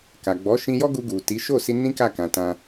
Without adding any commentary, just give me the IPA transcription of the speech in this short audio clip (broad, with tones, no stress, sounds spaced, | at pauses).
k a˨ ɡ͡b ɔ˨˦ ʃ ĩ˧ j ɔ˦ ɡ u˧ ɡ u˨ t i˨˦ ʃ o˦˨ s i˧ n ĩ˦ k a˦˨ k ã˧ t ã˦